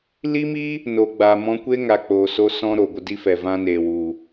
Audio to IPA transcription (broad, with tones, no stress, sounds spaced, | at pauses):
l i˦ m i˦ | n o˨ ɡ͡b a˨ m ɔ̃˧ kʷ e˦ ŋ a˨ k͡p oː˨ s o˧ s ɔ̃˧ ɾ o˨ ɡʷ ə˧ d i˦ f ɛ˨ v ã˧ n eː˨ w u˨